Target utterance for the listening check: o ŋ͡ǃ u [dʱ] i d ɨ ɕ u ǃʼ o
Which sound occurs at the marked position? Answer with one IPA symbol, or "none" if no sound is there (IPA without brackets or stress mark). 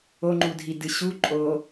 dʱ